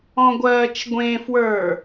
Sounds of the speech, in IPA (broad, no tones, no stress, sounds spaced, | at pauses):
ɔ̃ ɡʷ ɜː t͡ʃ ɡʷ ẽ f w ə˞